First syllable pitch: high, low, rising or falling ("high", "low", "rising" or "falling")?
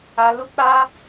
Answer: high